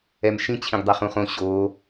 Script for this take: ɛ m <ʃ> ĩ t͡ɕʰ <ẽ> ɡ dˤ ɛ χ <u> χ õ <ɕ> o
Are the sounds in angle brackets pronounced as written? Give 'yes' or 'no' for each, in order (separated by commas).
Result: yes, no, no, yes